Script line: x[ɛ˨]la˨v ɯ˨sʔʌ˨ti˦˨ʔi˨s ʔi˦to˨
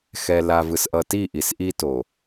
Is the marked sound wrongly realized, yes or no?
no